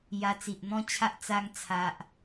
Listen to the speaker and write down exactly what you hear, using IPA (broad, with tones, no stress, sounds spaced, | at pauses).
j a˧ t͡s i˨ ʔ n̪ ɔ̃˦ t͡ɕʰ a˦ ʔ t͡s a˧ ŋ t͡sʰ a˨ ʔ